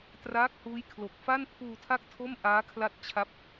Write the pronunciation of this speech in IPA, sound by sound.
t r aː˦˥ k̚ h uː˦˥ j kʰ l o˨˩ k̚ f a˥˩ n pʰ uː˧ tʰ a˥˩ k̚ tʰ o˥˩ m ʔ aː˦˥ kʰ l a˦˥ t̚ t͡ɕʰ a˦˥ p̚

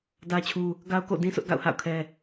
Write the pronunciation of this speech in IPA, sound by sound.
d ä˦ t͡ɕʰ u˦ | ɡ a˦ ʊ̯ k o̰˦˨ d ĩ˦ sʰ ʊ˦ ʔ ɡ a̰˦˨ ʊ̯ h a̰˦˨ ʊ̯ kʰ ɛ˦

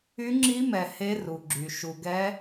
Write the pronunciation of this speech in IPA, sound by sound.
y˧˥ ŋ͡ǁ i˧˥ m ɛ˨ h e˧˥ r u˨ ɡ͡ǁ y˨ ʃ u˨ ɡ ɛ˧˥

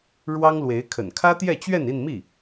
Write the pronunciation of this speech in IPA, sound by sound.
ɻ w ɑ˥ ŋ l w e˧˥ ɪ̯ kʰ ə̰˨˩ n kʰ ä˥ t̪ j ɛ˥˧ t͡ɕ ɥ ɛ˥˧ n i˥˧ n m i˥˩

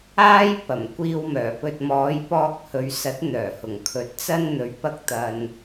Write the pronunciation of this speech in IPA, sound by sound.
aː˥ j p ɐ˨˩ m kʷ iː˧ w m œː˨˩ p ɵ˧ t̚ m ɔː˨˧ j p ɔː˧ k̚ h ɵ˨ ɥ s ɐ˨˥ t̚ n̪ œː˨˩ h ʊ˨˩ ŋ kʰ ɵ˨˥ t̚ t͡s ɐ˥ n n̪ ɵ˨˧ ɥ p ɐ˥ k̚ t̪ ɐ˨ n

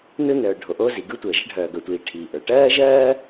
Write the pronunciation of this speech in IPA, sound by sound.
n ɯ˥ n œː˩ ɖʱ o˩ ʔ oː˥ z i˩ ɡ ɯ˥ tʷ əː˩ ʒ ə˥ ɖʱ œː˩ ɡ œ˩ tʷ iː˩ ʈʰ i˩ ʔ ə˞˩ ʈ ɜː˥ ʒ ɜː˥

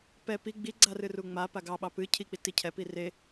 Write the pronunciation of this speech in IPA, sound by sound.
p ɛ p i ɡ͡b i ɡ͡ǀ a r ɨ r u ŋ͡m a p a ɡ ɑ ɓ ɑ p ɨ cʰ i k͡p i t i cʰ ɛ p i r e

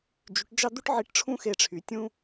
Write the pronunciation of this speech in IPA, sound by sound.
d͡ʒ y˧˥ ʈ d͡ʒ ɑ˥ d̪ u˥ ʈ ʕ i˧˥ ʈ ʈ͡ʂʰ ũ˥ x e˧ ʈ͡ʂʰ y˩˧ tʲ ũ˥

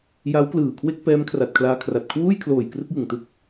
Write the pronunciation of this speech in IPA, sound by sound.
j a˦˥ w k l ɯː˨˩ kʰ w e˥˩ k̚ p ɛː˦˥ m kʰ r a˨˩ t̚ kʰ l aː˧ kʰ r a˨˩ t̚ kʰ w uː˥˩ j kʰ l oː˨˩ j k r ɯ˥˩ k̚ j ɯ˨˩ ŋ t ɯ˥˩ k̚

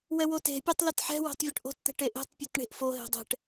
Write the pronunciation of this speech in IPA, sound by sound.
w ɛ w o t e̤ pʲ e tˤ l ɛ t ħ ɛ̤ w ɛ̤ tˤ vʲ o ʈ ʔ o̤ t t̪ ɛ̤ ʈ e ʔ e̤ tˤ pʲ e t ɳ e̤ ʔ f o ɦ e̤ dˤ ɛ̤ ʈ

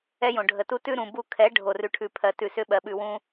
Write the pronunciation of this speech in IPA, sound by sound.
ɛ˦ j õ˨ ɖʱ ə˨ t u˦ t ʉ˦ ɾ ũ˨ b u˦˨ kʰ ɛ˨˦ ɖʱ o˨ r ʉ˨ ʈʰ ʉ˨ pʰ ɜ˨ t ʉ˨ s ʏ˦ ɓ ɜ˨ ɓ ʉ˨ w ũ˦

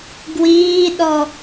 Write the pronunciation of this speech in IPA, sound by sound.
ɡ w iː ɗ ɔ

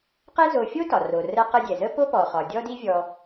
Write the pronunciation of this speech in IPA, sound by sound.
q ɛ˥ z o˧ fʲ o˥ t ɒ˩ r o˩ r ə˧ q ə˧ dʲ ɛ˩ z ə˥ p o˥ p ɔ˩ χ ɒ˩ dʲ ɔ˥ d i˥ vʲ ɔ˧

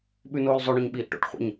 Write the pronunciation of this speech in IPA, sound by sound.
ɓ ʉ n oː l zˤ ʉ ɳ o ɲ ɓ iː ʔ ʈ o̰ ʈ χʷ ə̰ ɲ

